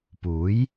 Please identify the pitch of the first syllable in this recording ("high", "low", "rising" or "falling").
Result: rising